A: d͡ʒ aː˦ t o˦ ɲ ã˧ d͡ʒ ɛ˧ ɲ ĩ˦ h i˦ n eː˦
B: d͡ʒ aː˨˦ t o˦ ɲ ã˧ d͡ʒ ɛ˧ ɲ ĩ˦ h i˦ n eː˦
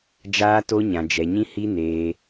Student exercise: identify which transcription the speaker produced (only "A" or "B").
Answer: A